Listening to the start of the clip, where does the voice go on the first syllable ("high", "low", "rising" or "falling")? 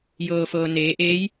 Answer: low